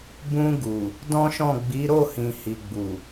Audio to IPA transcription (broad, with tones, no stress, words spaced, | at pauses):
bũ˧ɡu˨ | dɔ̃˦ʃɔ̃˦˨ ɡ͡bi˨˦ ɾo˦˨hĩ˨ hi˨ɡ͡bu˨